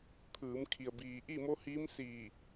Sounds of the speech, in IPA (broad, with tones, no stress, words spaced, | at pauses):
t̪ʰɯː˩˧mkʰi˩ə̯biː˩ʔi˥˨ mo˧˥hiː˧˥msiː˧˩